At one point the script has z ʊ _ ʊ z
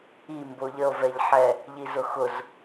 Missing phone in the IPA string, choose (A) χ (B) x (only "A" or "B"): B